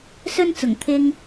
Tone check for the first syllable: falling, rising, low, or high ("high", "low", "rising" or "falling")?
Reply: high